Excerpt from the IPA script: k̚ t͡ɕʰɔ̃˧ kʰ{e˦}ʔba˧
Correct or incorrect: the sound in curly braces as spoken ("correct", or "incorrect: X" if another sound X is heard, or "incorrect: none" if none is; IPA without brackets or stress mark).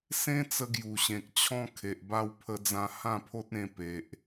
incorrect: e˨